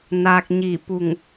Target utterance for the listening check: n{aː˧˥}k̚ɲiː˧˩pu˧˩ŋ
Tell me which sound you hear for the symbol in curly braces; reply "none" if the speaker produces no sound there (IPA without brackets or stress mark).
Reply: aː˧